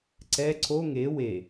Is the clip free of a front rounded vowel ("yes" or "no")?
yes